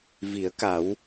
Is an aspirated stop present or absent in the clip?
absent